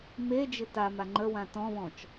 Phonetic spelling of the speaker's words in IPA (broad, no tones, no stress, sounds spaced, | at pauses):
m e d͡ʒ ɪ t a m a ŋ͡ǃ ə w ã t ɔ̃ β ɔ̃ t͡ʃ